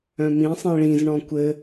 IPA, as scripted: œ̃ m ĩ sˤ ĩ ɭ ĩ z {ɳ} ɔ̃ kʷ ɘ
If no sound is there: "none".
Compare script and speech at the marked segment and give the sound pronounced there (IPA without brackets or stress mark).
ɳ